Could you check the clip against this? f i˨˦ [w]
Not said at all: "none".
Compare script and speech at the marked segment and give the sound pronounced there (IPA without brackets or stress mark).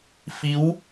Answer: w